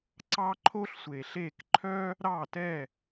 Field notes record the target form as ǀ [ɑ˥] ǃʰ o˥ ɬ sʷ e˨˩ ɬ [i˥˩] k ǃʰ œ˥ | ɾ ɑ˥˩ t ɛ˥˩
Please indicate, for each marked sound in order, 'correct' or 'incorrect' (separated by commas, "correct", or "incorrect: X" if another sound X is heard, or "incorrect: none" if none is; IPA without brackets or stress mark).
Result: correct, incorrect: e˥˩